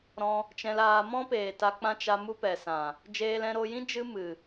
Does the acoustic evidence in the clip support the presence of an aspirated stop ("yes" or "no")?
no